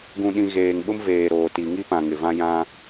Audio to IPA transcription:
ɡ ũ˨ ɗ ĩ˨ ɣ eː˨ ŋ ɓ ʊ˦ m v eː˨ ɾ oː˨ t i˨ ŋ i˦ p ã˨ ŋ ɪ˨ v ã˦ j ã˦

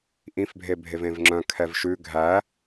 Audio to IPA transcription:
ʔ ĩ f bʱ e bʱ e v ẽ v ŋ͡ǁ œ̃ kʰ ɛ v ʃ ʉ ɡʱ æ

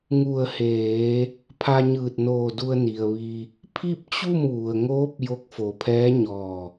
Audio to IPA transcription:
ŋ u˧˩ ə̯ h eː˩˧ | pʰ a˧ ɲ ɯː˧˩ t̚ n oː˧˩ d u˧ ə̯ n i˩ ə̯ ʋ i˧ | pʰ i˥˨ p̚ t͡ɕ u˥˨ m ʋ u˩ ə̯ ŋ oː˧˥ p̚ j o˧˥ k̚ f o˩˧ pʰ ɛː˧˥ ɲ ɔː˧˩

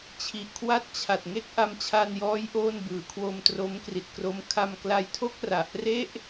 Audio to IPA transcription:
t͡ɕʰ i˨˩ ʔ kʰ w a˥˩ t̚ t͡ɕʰ a˨˩ t̚ ŋ e˥˩ k̚ ʔ a˧ m t͡ɕʰ a˧ n j ɔː˦˥ j ʔ oː˥˩ n b ɯː˩˦ kʰ w o˧ m t r o˦˥ m k r i˨˩ t̚ k r o˦˥ m kʰ a˧ m k l a˧ j tʰ o˥˩ k̚ r a˨˩ ʔ r e˥˩ ʔ

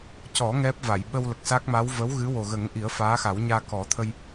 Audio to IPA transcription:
c ɔ˨˩˦ ŋ ɛ˦˥ p̚ v a˨˩˨ j ɓ ə˧ w l ə˨˩ k̚ s a˦˥ k̚ m a˧˥ w v ə˧˥ w ɣ ɨ˧˥ w o˨˩ ɣ ə˨˩˦ ŋ ʔ i˨˩˦ ə̯ f aː˧˥ x a˨˩˦ w ɲ aː˧ k ɔ˨˩˦ t̪ʰ ə˧ j

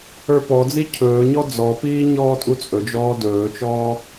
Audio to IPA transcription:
ə˞ p ɔ d͡z i cʰ ɵː ɲ ɔ d͡z ɔ p iː ɲ ɔː tʼ u t͡sʼ ɵ d͡ʒ ɔː d ɵː t͡ʃ ɔː

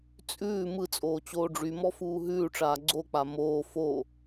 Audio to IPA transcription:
t͡sʼ ʉː m ɯ t͡sʼ oː t͡ɕ oː ɖ͡ʐ y m ɔ f uː ɦ ʉː ʈ͡ʂ aː ɡ͡ǀ o k͡p a m oː f o

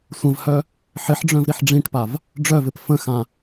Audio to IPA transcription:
sʷ ə̃ v h œ | ħ ɪ ħ ɖ͡ʐ œ̃ v ɾ i ħ ɖ͡ʐ ĩ ʈ p a v | ɖ͡ʐ œ v ɪ p f ə̃ x ã

